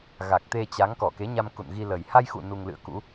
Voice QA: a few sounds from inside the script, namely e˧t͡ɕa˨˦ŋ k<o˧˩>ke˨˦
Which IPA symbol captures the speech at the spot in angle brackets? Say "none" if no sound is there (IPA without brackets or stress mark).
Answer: ɔ˧˩